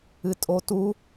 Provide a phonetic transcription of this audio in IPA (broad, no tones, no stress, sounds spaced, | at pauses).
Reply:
ɨ tʼ o t u